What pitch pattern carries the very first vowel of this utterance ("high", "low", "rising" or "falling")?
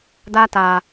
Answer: high